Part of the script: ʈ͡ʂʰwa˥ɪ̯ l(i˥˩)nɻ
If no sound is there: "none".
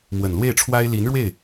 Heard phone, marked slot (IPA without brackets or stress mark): i˧˥